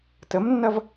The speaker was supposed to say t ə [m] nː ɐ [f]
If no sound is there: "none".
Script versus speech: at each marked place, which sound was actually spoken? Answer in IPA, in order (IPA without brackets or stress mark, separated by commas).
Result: m, v